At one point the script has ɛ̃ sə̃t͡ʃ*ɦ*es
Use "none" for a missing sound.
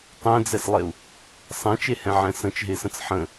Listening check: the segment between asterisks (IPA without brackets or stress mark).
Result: ɦ